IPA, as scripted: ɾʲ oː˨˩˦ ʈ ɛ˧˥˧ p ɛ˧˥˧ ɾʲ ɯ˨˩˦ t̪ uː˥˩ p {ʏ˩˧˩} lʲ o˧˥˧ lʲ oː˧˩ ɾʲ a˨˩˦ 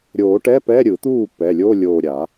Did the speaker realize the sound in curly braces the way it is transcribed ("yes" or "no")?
no